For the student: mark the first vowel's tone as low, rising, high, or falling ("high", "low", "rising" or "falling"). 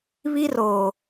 high